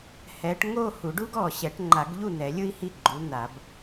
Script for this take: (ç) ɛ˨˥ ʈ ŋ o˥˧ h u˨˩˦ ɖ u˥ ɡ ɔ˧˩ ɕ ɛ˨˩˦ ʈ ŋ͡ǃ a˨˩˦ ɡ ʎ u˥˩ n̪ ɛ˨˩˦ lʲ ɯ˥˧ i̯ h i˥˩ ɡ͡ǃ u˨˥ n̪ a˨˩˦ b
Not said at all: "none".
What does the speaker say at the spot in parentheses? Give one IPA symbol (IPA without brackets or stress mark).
h